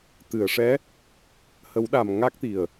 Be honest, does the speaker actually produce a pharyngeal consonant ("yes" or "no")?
no